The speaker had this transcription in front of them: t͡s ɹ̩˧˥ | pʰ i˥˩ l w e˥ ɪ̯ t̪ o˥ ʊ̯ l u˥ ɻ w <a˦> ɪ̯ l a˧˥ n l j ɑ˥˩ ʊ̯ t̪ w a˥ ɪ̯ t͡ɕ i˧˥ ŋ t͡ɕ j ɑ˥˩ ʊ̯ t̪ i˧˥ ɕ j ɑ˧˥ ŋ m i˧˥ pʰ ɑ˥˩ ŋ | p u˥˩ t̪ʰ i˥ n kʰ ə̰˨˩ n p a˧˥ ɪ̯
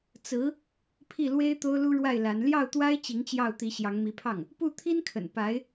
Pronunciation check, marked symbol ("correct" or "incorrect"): incorrect